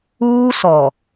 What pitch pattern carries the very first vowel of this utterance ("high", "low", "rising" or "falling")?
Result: high